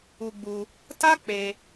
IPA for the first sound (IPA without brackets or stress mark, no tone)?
u